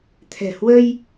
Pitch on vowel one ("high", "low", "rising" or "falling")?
low